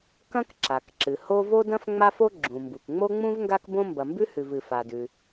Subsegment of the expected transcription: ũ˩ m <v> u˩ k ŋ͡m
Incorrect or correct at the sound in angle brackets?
incorrect: b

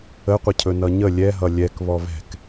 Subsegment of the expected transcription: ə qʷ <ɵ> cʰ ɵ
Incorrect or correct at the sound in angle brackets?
incorrect: ə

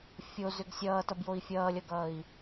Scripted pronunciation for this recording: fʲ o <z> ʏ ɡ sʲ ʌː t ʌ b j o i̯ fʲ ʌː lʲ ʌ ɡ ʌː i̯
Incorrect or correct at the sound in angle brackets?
correct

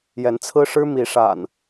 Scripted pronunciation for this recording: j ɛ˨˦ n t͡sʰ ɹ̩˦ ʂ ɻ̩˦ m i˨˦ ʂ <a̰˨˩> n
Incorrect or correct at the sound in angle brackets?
correct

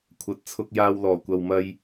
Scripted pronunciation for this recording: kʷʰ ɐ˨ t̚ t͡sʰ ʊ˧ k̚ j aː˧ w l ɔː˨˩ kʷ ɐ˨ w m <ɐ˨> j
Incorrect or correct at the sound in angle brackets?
incorrect: ɐ˧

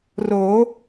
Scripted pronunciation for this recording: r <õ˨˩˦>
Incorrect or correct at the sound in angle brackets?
incorrect: o˨˩˦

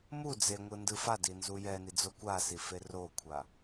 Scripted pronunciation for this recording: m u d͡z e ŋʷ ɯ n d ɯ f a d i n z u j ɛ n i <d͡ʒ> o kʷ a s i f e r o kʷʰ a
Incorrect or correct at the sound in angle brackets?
incorrect: d͡z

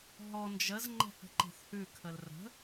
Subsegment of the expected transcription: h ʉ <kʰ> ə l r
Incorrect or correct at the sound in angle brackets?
correct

